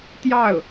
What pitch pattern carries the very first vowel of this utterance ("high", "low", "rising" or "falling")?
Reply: falling